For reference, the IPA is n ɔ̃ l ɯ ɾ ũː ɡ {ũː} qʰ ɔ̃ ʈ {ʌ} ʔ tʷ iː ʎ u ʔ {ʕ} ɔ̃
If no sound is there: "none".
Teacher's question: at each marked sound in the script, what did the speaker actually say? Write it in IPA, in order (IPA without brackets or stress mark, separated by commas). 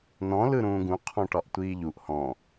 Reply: ũ, ɒ, h